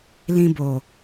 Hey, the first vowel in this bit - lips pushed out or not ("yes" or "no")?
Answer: no